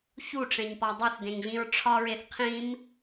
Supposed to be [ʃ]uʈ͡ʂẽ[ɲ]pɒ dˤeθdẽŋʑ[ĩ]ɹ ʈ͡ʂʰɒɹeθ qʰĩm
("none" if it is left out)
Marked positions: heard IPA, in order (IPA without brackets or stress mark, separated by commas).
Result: ç, ɲ, ĩ